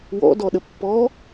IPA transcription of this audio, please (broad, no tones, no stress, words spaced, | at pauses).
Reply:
wɔ̰ dɔɗəpːɔ